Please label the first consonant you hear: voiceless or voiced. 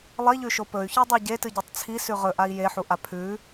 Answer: voiced